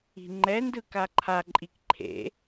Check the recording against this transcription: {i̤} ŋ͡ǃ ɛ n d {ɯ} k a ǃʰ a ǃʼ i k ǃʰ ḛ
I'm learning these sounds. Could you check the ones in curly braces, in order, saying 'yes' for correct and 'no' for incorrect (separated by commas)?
yes, yes